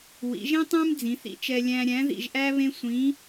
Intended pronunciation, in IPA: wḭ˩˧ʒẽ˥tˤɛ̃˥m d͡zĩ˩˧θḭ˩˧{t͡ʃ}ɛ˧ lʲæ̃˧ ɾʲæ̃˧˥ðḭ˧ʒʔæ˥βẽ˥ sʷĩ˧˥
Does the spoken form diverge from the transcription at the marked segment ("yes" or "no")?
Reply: no